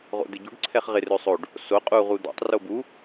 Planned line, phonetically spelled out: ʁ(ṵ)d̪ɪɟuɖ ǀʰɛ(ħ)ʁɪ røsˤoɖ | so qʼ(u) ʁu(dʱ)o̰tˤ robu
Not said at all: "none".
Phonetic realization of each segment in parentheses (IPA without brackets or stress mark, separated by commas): o̰, χ, u, d̪